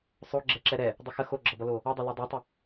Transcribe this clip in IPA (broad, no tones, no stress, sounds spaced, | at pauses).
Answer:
sˤ o ɡ͡ǁ ɛ ǁ ɛ ɾ ɛ | dˤ ə x ə x o ɡ͡ǁ ʌ b ʌ l o | ʌ dˤ ʌ l o dˤ ɛ tˤ ə